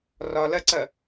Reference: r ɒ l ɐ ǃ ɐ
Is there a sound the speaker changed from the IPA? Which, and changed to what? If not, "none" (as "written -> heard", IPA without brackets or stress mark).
ǃ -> ǀ